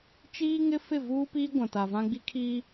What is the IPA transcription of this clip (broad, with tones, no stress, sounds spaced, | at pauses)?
t͡ʃ iː˦ ŋ ɪ˦ f ɪ˦˨ v uː˦ p iː˦ ɡʷ ã˨ t a˨ v ã˦ ɡ͡b i˦ kʰ iː˦